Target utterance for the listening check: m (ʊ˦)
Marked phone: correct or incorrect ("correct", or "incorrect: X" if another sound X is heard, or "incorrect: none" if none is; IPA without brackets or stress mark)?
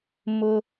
correct